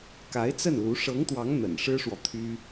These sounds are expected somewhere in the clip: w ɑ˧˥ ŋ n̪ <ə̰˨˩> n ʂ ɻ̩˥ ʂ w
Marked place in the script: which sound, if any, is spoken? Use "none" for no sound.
ə̰˨˩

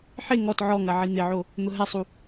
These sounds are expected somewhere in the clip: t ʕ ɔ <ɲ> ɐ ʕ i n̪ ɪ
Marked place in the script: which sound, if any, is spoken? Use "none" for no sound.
ŋ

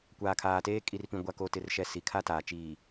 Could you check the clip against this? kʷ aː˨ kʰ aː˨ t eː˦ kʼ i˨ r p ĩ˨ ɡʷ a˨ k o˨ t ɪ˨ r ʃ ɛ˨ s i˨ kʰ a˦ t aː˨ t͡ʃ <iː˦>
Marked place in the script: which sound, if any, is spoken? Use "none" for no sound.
iː˨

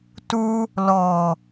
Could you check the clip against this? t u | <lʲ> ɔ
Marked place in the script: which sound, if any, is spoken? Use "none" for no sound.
l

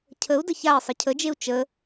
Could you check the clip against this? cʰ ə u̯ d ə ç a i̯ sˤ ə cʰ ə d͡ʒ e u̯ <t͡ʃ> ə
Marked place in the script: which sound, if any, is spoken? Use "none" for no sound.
t͡ʃ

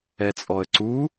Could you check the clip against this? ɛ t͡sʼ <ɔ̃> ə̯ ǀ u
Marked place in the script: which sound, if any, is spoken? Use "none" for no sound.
ɔ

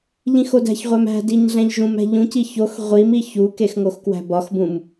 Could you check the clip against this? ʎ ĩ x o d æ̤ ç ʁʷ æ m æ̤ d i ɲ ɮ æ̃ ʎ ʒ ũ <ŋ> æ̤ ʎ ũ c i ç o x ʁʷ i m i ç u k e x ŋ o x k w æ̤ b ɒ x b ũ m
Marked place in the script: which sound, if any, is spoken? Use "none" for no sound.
m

